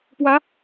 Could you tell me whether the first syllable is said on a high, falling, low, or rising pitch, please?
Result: rising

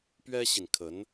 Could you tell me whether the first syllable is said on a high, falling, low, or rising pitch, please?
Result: high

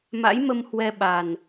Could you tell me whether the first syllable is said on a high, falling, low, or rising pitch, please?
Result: rising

